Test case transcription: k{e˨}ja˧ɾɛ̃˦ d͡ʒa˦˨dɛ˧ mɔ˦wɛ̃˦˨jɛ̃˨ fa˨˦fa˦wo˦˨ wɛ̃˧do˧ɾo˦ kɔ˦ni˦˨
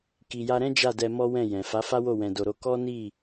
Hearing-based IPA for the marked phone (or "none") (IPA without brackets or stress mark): i˨